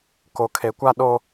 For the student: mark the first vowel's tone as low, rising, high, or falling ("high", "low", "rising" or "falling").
low